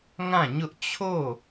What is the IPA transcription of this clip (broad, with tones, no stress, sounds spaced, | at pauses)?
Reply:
ŋ ã˦˨ ɲ ʊ˦ ʔ t͡ɕʰ o˦˨